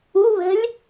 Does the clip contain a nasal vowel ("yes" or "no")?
no